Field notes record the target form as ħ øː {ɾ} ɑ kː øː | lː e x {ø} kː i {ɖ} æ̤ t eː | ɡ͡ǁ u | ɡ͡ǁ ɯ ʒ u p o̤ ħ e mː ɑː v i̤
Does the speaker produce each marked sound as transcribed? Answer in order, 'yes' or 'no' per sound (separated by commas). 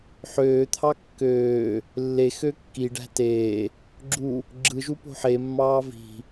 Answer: no, yes, yes